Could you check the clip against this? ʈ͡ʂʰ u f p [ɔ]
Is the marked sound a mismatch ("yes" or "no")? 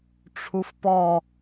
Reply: no